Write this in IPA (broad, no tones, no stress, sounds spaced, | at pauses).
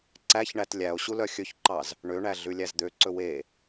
ǀ æ ç ɳ æ t lʲ æ o̯ ɕ u l œ xʲ ɵ ç ǃ ɑ z | ɳ ø ɳ æ ɮ ʉ lʲ æ z d̪ ø ǀ ɵ w e